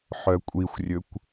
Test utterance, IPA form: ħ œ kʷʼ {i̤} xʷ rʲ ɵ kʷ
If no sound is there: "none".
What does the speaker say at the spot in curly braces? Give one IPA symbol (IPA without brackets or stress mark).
i